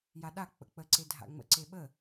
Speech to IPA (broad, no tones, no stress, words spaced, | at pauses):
jaɗa k͡pə̰k͡pə ǀedʱa̰ŋ͡mə̰ ǀeɓə